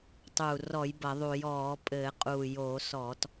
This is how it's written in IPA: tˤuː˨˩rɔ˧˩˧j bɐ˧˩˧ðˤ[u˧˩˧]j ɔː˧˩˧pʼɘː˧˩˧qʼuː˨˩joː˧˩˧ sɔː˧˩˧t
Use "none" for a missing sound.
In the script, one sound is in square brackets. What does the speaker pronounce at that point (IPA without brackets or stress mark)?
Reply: u˧˩˧